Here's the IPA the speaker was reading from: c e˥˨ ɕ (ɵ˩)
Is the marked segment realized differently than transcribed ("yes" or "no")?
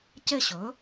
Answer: yes